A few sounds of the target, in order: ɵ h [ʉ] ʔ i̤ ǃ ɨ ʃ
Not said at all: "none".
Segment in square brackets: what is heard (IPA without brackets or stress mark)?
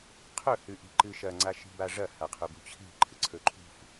ʉ